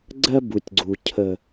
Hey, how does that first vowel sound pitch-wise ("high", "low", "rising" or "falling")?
high